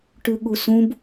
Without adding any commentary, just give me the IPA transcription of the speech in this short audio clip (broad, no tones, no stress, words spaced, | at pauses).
ʈʉɠusũb